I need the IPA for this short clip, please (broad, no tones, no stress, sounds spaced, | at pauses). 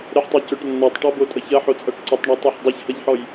ɾ ə ħ tˤ o c ɵ ʈ nː ɔ tˤ ʈ ɔ b o tʼ ʌ ç ɐ ħ o t͡sʼ ʌ ʈ ǀ ə tˤ ɳ a tˤ ɵ ħ dˤ ɐ ç h ʌ ʎ ħ ɔ j